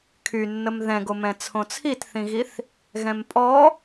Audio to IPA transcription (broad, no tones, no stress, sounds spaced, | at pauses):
kʰ y nː ə m ð ɛ̃ ɡ o m ɛ̃ t͡sʰ õ t͡sʰ i t θ ĩ ɣ i θ | ɣ ɛ̃ m pʼ ɔ